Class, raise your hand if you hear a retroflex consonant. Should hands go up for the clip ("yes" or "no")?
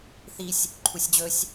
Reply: no